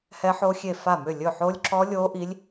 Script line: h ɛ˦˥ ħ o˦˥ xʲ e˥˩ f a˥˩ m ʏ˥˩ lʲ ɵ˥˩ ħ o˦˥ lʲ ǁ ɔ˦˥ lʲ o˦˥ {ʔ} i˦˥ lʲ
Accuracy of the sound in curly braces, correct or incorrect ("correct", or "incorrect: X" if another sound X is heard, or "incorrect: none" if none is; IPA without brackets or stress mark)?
correct